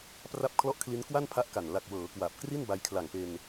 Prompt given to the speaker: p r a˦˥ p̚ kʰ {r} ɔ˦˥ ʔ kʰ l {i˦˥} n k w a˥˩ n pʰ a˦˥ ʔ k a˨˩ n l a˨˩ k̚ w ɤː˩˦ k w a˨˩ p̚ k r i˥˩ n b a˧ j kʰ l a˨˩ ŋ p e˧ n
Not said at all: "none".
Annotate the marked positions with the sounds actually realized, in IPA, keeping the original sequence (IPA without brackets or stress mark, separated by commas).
l, i˦˥